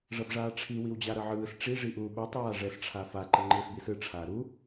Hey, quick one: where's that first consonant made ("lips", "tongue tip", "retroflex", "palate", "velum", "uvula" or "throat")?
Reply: retroflex